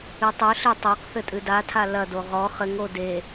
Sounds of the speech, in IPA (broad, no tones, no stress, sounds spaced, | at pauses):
ɨ tˤ u ɬ i tˤ a q θ ɘ tʼ ɨ d a tʰ a l ɐ d o ʁ ɔ χ ɘ ŋ o d e